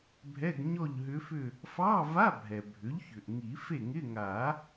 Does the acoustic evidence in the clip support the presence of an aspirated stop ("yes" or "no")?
no